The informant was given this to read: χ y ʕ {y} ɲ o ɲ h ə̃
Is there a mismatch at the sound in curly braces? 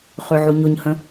yes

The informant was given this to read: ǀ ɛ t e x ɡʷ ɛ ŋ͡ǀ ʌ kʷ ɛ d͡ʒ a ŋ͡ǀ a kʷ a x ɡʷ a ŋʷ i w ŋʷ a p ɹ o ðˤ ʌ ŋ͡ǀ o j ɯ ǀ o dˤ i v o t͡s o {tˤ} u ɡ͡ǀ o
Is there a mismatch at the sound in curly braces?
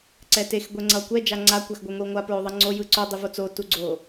yes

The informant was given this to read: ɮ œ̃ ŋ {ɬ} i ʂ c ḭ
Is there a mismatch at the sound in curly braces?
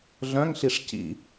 no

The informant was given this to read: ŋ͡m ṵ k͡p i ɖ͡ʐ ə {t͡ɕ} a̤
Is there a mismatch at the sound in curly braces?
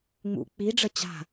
no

